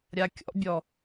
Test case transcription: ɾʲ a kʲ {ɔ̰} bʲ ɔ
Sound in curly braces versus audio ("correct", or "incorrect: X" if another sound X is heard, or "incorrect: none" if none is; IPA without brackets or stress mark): correct